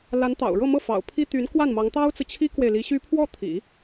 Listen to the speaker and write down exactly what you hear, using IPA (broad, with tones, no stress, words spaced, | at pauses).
la˧˥nt̪ɑ̰˨˩ʊ̯ɻɤ˥˧mɤ˥˩ fɑ̰˨˩ʊ̯pʰi˥ t̪y˧˥nkwa˥˩nmɑ˧˥ŋ t̪ɑ˥ʊ̯t͡sɹ̩˨t͡ɕʰi˥kwe˨ɪ̯ li˧˥ɕy˥ pʰwɔ˥˩t̪ʰḭ˨˩˦